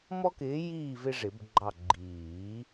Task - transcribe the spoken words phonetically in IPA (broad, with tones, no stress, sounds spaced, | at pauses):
m ɔ˦ k ɪː˨˥ j iː˦˨ v ɪ˦ ʐ ɪ˨˩˦ b ɡ͡ǃ ɑ˦˨ ɡ͡ǃ iː˨˩˦